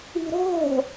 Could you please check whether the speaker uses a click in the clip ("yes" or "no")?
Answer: no